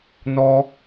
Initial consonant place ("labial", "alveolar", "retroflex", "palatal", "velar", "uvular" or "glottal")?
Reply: alveolar